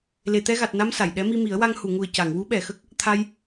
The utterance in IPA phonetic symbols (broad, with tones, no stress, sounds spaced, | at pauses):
l e˨˩˨ t̪ ɛ˧ ɣ a˨˩ t̚ n a˧ m s a˨˩˨ j ɗ ɛ˧˥ m i˧ m i˨˩˦ ə̯ w a˧ ŋ h u˨˩˨ ŋ u˨˩ ə̯ c a˨˩˨ ŋ w u˧˥ ɓ ɛ˨˩˨ x ə˦˥ k̚ | t̪ʰ a˧ j